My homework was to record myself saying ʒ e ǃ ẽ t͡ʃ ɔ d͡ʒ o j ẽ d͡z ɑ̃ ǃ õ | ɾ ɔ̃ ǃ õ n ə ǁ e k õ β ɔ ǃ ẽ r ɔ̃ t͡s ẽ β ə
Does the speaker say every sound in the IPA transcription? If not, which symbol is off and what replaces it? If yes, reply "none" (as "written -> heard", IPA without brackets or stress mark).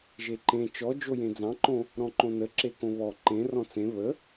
none